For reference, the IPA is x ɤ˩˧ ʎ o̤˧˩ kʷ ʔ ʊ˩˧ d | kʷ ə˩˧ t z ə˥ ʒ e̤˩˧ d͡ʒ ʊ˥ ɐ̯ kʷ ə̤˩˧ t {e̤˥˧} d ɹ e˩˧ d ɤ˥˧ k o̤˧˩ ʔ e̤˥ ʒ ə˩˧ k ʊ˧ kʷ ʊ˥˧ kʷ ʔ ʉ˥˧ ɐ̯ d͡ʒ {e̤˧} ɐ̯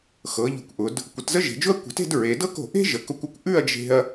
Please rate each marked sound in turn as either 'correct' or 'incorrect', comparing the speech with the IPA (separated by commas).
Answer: correct, correct